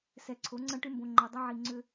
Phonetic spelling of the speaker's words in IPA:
sɛ˨ǀʰo˨˦ ŋ͡ǀɐ̃˦ʈʏ˦mbõ˨ŋ͡ǃo˨ dˤɐ˦ʕi˨ ŋ͡ǀʏ˦

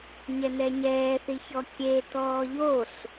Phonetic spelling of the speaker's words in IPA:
ɲɛnɛɲɛːθi çɔkʲetɔː ʎoɬ

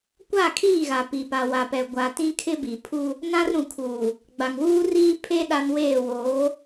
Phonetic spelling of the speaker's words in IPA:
kʷa˦˨kʰiː˦˨ɣa˨ pi˨pa˨wa˨pɛ˨ ɡʷa˨tĩ˦ kʰɪ˦bi˨pʰu˦ | nã˦rɾũ˨kʰuː˨ | ɡ͡ba˨ŋwuː˦riː˦ pʰe˦ ɗa˦nweː˦˨ woː˨˦

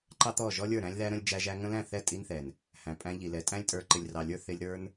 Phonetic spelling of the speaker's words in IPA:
ǃɑ˦t̪ɔ˦˨ ʒɔ˦lʲə˞˦˨ɾæ̃˦lʲðæ˦ ɾə̃˦lʲd͡ʒæ˦ʒæ˦ ŋə̃˦læ̃˦˨θɛ˦˨ tʼi˦nθɛ˨n | hæ̃˨pʼæ̃˧ ʎi˨lɛ˨˦tʼæ̃˦lʲtʼə˞˧ ǃɪ˨lʲrɑ˨lʲə˞˧ θɪ˧lʲɾə˞˦n

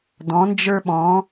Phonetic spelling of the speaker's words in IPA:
dɔ̃˨˥nd͡ʒə˞˥ɓɔ̃˨˥

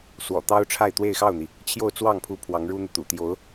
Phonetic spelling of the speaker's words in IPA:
swɔ̰˨˩t̪ɑ˥ʊ̯ʈ͡ʂʰa˥˧ɪ̯ t̪we˥˧ɪ̯xɑ˥˩ʊ̯n̪i˩ | t͡ɕʰjo˥˧ʊ̯t͡swɑ˥˩ŋpʰu˧˥ pʰwɑ˧˥ŋɻu˥n̪u˨t̪ṵ˨˩ t̪jo˧˥ʊ̯

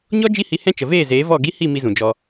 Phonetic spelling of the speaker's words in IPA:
ɲɔ˦ d͡ʒi˦hi˧hɛ̃˦ t͡ʃə˨veː˦˨zeː˨˦ vɔ˦˨ ɡi˦hi˦˨ mi˧zũ˨d͡ʒɔ˧

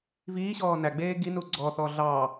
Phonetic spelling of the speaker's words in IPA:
viːɕɔː næɡ͡beː ɡinu ɡ͡ǀɔθɔː ɮɑ

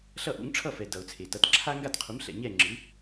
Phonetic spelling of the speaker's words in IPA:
ɬʌ˥˩ʔṵ˩˥ŋ ʈ͡ʂʰʌ˥˩fɛ˩ dʌ˩ʊ̯t͡sʰe˩tʌ˩˥t ǁʰa˥ ŋɡa˥˩tqʰu˩˥mɬɛ̰˩ ɲɛ˥˩ŋ͡ǁɯ˩˥

